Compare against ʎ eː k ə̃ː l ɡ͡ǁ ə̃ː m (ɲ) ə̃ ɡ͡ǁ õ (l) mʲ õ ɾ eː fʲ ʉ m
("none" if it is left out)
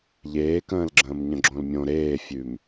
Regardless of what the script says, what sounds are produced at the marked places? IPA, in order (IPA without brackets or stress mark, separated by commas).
ɲ, l